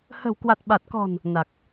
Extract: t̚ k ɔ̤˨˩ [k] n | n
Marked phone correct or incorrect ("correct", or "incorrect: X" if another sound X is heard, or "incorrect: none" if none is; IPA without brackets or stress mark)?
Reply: incorrect: none